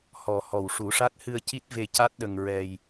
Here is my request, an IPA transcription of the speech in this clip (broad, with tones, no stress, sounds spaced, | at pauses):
h ɔ˨˩ h ɔ˨˩ w ʂ u˨˩˦ ʂ a˦˥ t̚ h ɨ˧ ə̯ c i˦˥ t̚ v e˧ c a˦˥ t̚ ɗ ə˧ ŋ ɹ ɛ˧ j